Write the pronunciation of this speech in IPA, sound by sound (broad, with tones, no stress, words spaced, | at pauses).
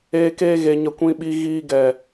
eː˧keː˧ɣe˨ɲə˨ kʷĩ˨ɓi˨ɣiː˨ ɡɛ˨